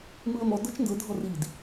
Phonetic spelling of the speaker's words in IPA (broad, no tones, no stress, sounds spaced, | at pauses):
m ɯ ə̯ m ɔ d ɤ t͡ʃ n d ɤ dʱ ɔ r i d